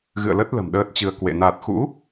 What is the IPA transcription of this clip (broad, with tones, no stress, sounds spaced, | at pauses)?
ɣ ɨ̰˧˨ ə̯ l ə˦˥ t̚ l ə̤˨˩ m ɗ əː˦˥ t̚ t͡ɕ ɨ˧ ə̯ k w ḛ˧˨ n a˨˩ t̚ x ṵ˧˥